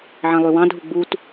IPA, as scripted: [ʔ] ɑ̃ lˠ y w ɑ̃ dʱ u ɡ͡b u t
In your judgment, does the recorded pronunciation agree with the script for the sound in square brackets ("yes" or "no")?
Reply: no